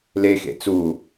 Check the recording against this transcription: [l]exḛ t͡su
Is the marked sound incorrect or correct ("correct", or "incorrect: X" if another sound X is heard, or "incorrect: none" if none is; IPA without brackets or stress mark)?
correct